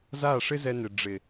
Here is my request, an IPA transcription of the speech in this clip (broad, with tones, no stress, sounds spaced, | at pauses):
z a˦˨ ʂ ɪ˦ z ɛ˧ n ɪ˨ ɖ͡ʐ ɪ˨